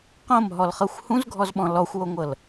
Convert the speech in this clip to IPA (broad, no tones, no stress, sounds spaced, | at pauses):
q õ m ɦ ɔ l χ ɤ xʷ h ũ z ɡʱ ɔ z ɓ ɔ̃ l ɔ xʷ w o ŋʷ ɤ l